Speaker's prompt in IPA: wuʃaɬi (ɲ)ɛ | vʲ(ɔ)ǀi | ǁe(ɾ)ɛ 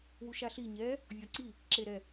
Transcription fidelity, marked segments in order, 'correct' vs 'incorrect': correct, correct, correct

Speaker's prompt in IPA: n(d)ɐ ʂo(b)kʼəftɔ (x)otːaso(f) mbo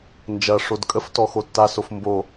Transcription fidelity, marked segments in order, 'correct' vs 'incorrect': incorrect: d͡ʒ, incorrect: d, correct, correct

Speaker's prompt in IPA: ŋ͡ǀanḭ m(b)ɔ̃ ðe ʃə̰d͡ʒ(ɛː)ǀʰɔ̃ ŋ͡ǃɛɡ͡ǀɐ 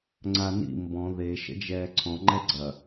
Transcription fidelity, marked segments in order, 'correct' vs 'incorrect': correct, correct

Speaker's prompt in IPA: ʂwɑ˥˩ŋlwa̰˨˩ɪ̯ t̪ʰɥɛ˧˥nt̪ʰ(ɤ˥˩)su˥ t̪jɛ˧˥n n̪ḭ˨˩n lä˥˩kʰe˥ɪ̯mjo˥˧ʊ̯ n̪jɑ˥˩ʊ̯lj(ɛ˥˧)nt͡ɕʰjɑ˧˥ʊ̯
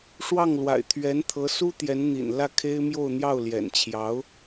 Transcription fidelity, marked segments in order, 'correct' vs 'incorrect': incorrect: ɤ˧˥, incorrect: ɛ̰˨˩

